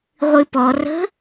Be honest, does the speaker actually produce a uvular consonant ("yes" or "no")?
yes